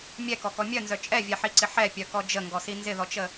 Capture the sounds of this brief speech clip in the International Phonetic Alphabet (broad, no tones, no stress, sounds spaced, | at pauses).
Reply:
mʲ ɛ k ɔ k ɔ mʲ œ n z œ t͡ʃʼ ɛ vʲ ɛ ħ i ǀ ɪ ħ ɛ pʲ œ k ɔ d͡ʒ ə ŋ ɡ ɔ s i n z ɪ ð ɔ t͡ʃ ə